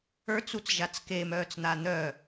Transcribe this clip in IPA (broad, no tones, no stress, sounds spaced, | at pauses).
ə˞ t͡s u t͡s ʒ a t͡s k e m œː t͡s n̪ a n̪ œ